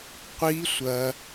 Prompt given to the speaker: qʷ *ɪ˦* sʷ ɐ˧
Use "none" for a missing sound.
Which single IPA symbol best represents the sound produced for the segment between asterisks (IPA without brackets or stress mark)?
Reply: i˦